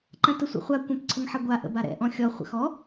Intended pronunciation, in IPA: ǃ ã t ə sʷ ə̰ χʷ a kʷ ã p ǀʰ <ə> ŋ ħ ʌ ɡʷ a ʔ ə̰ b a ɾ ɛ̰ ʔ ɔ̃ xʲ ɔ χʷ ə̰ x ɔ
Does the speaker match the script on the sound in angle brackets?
yes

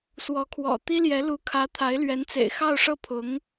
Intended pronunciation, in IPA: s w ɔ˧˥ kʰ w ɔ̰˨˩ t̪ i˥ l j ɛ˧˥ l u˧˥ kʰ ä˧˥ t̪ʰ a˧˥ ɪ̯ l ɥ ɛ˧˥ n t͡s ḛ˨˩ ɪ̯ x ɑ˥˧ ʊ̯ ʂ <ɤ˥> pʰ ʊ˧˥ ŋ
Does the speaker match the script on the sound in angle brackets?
no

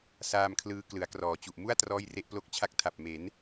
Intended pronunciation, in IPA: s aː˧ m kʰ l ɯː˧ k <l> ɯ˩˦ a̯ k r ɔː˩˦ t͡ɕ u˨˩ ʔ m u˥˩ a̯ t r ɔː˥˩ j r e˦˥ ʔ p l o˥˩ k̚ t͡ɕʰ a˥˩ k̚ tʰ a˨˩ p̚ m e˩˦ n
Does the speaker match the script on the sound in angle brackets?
yes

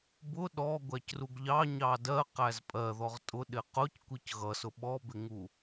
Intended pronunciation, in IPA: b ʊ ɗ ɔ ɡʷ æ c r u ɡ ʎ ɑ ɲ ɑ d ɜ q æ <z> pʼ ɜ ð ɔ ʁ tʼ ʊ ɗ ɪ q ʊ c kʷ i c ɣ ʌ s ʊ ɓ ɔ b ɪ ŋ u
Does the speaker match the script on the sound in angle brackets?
yes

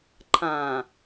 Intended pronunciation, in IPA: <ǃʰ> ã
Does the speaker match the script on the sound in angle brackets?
yes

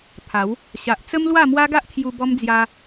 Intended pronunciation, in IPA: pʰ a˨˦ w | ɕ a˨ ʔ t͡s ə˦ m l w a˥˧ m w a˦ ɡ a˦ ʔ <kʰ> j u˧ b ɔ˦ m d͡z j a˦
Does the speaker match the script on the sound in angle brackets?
yes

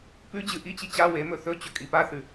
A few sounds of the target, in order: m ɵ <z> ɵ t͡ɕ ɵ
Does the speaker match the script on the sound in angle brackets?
no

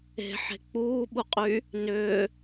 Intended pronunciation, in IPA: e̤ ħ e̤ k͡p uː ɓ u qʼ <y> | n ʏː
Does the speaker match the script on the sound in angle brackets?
yes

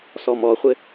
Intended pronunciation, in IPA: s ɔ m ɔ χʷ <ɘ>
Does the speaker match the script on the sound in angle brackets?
yes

